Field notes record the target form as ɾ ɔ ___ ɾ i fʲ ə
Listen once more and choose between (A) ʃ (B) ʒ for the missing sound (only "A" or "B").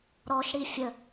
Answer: A